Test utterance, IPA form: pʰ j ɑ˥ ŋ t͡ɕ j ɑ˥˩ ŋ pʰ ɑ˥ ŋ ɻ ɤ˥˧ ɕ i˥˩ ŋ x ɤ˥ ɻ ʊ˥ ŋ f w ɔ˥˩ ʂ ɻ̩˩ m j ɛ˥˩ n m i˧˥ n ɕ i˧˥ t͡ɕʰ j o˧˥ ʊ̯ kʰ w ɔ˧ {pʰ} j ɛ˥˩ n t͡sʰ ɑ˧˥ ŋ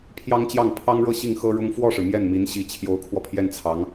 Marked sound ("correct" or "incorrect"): correct